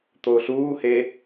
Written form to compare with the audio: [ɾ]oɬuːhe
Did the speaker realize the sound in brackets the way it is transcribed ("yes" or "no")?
no